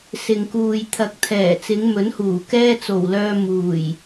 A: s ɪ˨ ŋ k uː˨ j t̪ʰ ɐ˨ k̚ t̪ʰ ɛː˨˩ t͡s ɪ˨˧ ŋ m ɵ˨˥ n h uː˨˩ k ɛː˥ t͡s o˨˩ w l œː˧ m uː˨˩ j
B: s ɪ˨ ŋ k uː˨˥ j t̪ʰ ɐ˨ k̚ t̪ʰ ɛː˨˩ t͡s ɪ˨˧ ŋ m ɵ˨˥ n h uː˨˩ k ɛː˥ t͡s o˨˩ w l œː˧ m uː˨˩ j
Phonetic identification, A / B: A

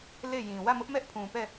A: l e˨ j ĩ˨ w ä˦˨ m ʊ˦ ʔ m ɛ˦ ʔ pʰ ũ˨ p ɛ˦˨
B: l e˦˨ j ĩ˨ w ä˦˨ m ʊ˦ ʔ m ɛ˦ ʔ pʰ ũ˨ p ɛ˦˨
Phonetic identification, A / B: B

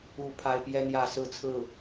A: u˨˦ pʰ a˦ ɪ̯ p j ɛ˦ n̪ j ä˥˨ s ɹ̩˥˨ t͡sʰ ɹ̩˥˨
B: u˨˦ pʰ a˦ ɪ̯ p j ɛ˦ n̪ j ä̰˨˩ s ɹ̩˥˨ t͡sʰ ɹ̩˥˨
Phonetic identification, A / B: A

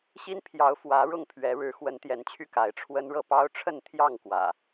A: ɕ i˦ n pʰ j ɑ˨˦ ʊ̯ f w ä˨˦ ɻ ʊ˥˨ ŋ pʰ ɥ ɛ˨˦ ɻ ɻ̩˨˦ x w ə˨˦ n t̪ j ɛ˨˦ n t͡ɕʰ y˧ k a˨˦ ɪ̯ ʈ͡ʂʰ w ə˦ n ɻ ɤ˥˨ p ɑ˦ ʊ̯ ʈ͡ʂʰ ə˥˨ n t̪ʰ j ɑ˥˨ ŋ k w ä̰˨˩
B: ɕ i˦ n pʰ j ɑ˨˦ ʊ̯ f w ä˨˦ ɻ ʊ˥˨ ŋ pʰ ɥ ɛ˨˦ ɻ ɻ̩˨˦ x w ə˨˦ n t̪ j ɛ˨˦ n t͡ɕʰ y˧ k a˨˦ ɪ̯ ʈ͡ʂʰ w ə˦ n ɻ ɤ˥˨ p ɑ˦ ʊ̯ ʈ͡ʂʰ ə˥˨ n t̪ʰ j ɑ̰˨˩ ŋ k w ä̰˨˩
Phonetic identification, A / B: A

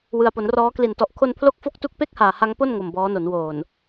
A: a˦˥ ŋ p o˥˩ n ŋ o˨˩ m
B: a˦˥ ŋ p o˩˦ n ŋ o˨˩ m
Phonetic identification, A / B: A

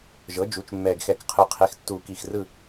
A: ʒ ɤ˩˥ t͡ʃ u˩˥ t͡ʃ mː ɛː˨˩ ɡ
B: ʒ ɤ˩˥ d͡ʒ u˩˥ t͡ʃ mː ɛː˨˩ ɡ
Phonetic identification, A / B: B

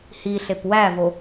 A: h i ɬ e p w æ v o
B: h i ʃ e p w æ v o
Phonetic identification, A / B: A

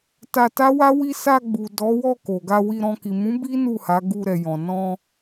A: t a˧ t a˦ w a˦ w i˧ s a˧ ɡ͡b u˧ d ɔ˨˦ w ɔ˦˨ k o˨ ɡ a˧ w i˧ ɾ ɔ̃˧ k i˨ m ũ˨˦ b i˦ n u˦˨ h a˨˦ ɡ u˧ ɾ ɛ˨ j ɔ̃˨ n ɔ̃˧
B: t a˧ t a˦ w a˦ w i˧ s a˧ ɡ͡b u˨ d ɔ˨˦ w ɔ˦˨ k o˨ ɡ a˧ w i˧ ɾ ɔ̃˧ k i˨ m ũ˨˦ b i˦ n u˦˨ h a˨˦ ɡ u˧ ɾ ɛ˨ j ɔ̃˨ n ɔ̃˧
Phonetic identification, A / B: B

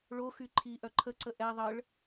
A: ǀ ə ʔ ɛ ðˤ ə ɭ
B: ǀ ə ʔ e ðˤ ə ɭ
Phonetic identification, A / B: A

